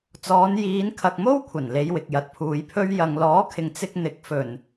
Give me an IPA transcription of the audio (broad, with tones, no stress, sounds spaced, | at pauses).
t͡s ɔː˨˧ n j iː˨˧ n kʰ ɐ˨ k̚ m o˥ w kʷʰ ɐ˨˩ n l e˨˧ j w ɪ˨ k̚ j ɐ˨ t̚ pʰ uː˨˧ j pʰ ɵ˥ ɥ j ɐ˨ ŋ l ɔː˨˥ kʰ ɪ˨ ŋ t͡s ɪ˥ k̚ n̪ ɪ˨˥ k̚ f ɵ˨˩ n